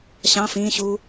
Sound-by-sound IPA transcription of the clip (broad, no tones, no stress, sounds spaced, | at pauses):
ɕ ɑ̃ f ĩː ɕ uː